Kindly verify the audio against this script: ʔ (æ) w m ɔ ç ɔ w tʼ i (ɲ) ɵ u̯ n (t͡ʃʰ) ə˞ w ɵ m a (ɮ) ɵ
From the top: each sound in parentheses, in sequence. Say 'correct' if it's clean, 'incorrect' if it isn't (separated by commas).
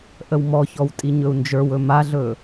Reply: incorrect, correct, incorrect, correct